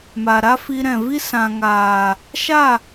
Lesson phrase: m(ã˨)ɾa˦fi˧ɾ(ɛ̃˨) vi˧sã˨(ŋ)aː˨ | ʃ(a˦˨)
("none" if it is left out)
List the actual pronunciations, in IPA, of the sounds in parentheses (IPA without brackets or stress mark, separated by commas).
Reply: a˨, ɛ̃˨, ŋ, a˦˨